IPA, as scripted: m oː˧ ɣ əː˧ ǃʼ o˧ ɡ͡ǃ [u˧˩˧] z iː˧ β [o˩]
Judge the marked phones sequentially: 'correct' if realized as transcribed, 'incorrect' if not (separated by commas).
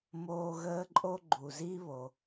incorrect, correct